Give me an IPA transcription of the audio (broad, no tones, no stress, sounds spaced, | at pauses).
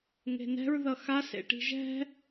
ŋ e̤ n ɛ̤ ɹ ð ʌ x a s ḛ ʈ i̤ ʒ ɛ̤